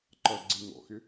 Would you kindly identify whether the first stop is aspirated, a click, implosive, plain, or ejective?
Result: click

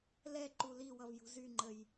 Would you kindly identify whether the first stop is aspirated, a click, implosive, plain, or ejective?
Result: click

